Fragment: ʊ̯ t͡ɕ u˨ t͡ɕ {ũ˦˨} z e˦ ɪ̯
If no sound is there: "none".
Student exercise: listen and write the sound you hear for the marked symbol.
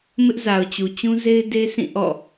ũ˦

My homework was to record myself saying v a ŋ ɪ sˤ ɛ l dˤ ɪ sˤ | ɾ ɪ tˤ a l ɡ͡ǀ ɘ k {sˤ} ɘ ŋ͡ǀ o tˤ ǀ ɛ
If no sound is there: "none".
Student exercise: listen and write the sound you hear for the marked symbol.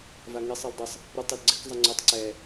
zˤ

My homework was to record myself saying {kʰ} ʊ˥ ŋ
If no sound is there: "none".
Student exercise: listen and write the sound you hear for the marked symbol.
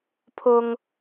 pʰ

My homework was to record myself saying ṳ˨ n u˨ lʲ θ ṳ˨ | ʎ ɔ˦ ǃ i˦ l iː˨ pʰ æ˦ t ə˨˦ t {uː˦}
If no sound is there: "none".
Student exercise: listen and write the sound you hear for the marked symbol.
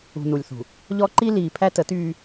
yː˦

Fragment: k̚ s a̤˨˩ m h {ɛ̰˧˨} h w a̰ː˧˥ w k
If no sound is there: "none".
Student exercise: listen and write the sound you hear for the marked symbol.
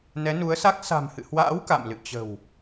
ɨ̰˧˨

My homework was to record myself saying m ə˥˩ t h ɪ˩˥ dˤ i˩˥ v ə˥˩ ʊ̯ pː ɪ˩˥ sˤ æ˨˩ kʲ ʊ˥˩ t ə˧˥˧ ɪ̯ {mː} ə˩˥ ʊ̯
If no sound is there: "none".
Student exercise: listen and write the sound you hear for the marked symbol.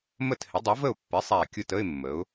mː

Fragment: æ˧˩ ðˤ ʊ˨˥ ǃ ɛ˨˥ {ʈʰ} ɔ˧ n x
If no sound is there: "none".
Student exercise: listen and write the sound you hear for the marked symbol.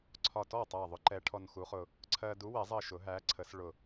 ʈʰ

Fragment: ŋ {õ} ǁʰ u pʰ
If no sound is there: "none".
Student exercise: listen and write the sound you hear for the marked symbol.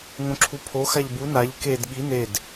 õ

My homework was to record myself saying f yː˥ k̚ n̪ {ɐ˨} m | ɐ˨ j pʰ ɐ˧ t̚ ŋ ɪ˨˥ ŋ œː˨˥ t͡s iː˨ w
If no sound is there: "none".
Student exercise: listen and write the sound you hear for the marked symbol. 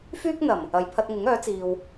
ɐ˨˩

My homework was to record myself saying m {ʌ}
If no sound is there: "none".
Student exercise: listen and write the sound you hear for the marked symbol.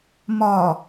ɒ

